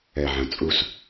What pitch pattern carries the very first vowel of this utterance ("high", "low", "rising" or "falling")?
low